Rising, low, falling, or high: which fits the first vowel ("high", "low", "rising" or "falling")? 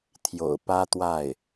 low